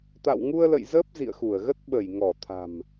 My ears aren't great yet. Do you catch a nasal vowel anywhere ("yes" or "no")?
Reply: no